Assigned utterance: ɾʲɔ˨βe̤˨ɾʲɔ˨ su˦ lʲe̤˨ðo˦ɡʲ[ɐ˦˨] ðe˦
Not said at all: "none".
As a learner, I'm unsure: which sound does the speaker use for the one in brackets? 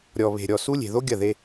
ɐ˦˨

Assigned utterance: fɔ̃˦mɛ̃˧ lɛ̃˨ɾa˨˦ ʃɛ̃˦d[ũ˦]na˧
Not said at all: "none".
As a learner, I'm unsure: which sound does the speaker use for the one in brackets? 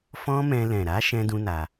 ũ˦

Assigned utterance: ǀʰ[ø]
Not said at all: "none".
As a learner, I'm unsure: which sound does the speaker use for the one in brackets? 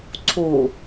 u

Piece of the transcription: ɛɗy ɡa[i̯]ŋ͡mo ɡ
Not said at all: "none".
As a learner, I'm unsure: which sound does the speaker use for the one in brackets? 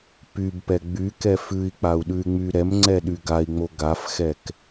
i̯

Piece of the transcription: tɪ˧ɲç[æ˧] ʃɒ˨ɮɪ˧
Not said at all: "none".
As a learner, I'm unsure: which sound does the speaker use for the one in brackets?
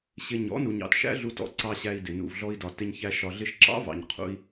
æ˧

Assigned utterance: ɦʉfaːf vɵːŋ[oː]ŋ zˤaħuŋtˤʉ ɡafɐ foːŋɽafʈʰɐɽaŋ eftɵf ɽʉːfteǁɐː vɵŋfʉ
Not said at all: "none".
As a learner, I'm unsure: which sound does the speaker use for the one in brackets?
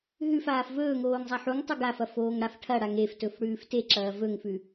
oː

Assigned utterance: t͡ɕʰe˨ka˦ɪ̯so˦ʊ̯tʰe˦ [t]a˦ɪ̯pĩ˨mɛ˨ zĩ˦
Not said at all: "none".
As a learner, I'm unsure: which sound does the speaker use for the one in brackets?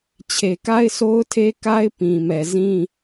k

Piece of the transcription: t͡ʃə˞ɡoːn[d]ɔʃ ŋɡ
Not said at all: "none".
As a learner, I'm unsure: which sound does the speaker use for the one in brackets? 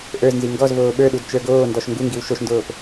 d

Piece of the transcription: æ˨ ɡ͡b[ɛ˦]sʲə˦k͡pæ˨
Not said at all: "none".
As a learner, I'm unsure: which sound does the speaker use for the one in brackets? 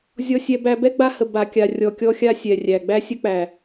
æ˦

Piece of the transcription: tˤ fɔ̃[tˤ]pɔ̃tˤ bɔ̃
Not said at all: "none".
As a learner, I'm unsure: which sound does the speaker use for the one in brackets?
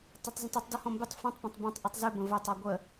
tˤ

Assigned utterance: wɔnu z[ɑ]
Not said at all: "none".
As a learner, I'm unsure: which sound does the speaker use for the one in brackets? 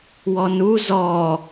ɔ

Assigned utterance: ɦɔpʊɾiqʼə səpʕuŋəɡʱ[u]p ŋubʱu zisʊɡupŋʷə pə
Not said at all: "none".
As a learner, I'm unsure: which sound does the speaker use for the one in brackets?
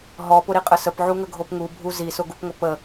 o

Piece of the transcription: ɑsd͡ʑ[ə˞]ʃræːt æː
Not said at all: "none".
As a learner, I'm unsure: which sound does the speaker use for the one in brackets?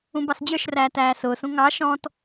ə˞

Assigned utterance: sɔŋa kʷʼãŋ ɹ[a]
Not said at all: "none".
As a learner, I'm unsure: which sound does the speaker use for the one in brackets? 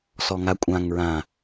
ã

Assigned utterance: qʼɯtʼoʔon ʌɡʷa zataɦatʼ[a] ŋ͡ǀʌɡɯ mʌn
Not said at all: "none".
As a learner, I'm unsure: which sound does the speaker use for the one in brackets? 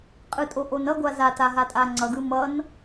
a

